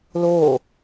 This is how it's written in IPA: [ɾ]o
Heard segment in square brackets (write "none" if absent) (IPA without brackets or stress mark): l